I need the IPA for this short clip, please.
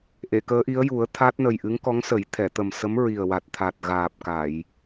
ʔ e˨˩˨ k əː˧˥ ʔ i˧˥ ə̯ j u˨˩˦ ə̯ t̪ʰ a˦˥ t̚ n ə˨˩ j ʔ ɨ˧˥ ŋ k ɔ˧˥ ŋ s ə˨˩˦ j t̪ʰ ɛ˨˩˨ t̪ ə˨˩ m s ə˧˥ m ɹ i˨˩ ə̯ w a˨˩ t̚ t̪ʰ a˨˩ t̚ ɣ aː˨˩ p̚ k a˨˩˨ j

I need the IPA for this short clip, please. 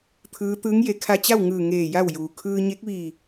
t̪ʰ ɯː˧˥ t̪ ɯː˧˥ ŋ j e˩˧ kʰ a˧ t͡ɕ a˥˨ w ŋ ɯː˧˩ ŋ eː˧˩ j a˥˨ w j uː˩ kʰ ɯː˧ ɲ e˧˥ k̚ ʋ iː˧˩

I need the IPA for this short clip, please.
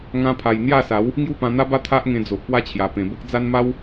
ŋ ã˧ pʰ a˨˩ j n̪ j a˥˧ s a˨˦ w | ŋ j u˥˧ p ã˧ n̪ a˦ b a˦ t̪ʰ a˦ ʔ ŋ ẽ˧ d͡z o˨ ʔ p w a˥˧ t͡ɕʰ j a˨˩ p ẽ˨˩ b ə˦ k̚ d͡z a˦ n m a˦ w

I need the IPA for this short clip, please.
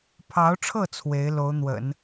pʰ ɑ˧˥ ʊ̯ ʈ͡ʂʰ ɤ˥˩ t͡sʰ w e˧˥ ɪ̯ l o˧˥ ʊ̯ n̪ w ə̰˨˩˦ n

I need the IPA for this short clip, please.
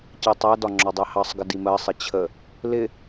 c ɜ tˤ æ d ɒ ŋ͡ǁ ɔ dˤ æ h ɑ sˤ ɡ ə d i m ɜ sˤ ɪ t͡ɕʰ ə | l ɪ

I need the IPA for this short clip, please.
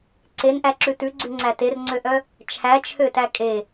ǀ e n ʔ æ ǁ ʉ t ʉ ɡ͡ǀ ʉ ŋ͡ǀ æ t e r ŋ͡ǀ ø ʔ œ | t͡ʃʰ æ t͡ʃʰ ø t æ kʼ e

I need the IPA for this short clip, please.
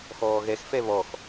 x ɔː ɣ ɛ x f ɛ β ɔ x

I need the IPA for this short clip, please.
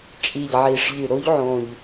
t͡ʃʼ i˨˩ ʎ ʕ i˨˩ ʂ ʎ ɨ˨˩ ɾ o˧˥ ʎ ʕ õ˨˩ ʎ

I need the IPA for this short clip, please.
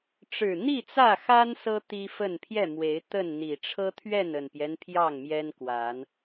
ʈ͡ʂ ɻ̩˨˩ n̪ i˥˨ t͡s ä˥˨ x a˦ n s ɤ˦ t̪ i˦ f ə˥˨ n pʰ j ɛ˥˨ m w e˨˦ ɪ̯ t̪ ə˥˨ n n̪ i˨˩ ʈ͡ʂʰ ɤ˦ t̪ʰ ɥ ɛ˥˨ n ə˨˩ n p j ɛ˦ n pʰ j ɑ˥˨ ŋ m j ɛ˦ n k w a˨˦ n

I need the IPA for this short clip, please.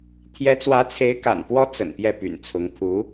t̪ʰ j ɛ˧˥ t͡s w ä˧˥ t͡sʰ e˧˥ ɪ̯ k a̰˨˩ n p w ɔ˥ t͡s ə̰˨˩ n p j ɛ˥˩ p y̰˨˩ n t͡sʰ ʊ˧˥ ŋ pʰ u˧˥

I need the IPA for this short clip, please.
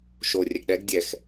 ʃ o rʲ ɛ ɡ ɗ ɛ ɡ dʲ ɛ x

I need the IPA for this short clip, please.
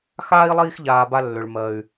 x aː˥ i̯ lˠ iː˦ x ʎ aː˨ b a˦ lː ʏ˩ ɭ m ɜ˩ y̯

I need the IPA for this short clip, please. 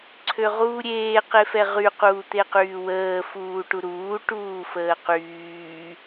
ǀʰ ø ʁ uː ɾʲ eː q e f ɛ ʁ y q uː t̪ e q yː w əː f uː ʈ u ɾ uː ʈ uː f əː q yː

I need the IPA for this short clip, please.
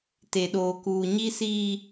t e˨ ɗ oː˨ k uː˨ ɲ i˦ s iː˦

